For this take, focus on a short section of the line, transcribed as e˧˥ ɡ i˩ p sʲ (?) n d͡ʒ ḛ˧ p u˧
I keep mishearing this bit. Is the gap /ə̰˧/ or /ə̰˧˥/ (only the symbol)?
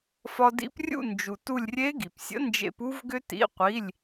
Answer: ə̰˧˥